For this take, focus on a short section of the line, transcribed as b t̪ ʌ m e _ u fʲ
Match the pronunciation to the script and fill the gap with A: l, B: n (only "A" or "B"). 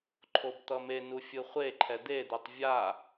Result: B